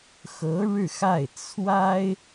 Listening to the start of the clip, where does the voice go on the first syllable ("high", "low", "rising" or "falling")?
rising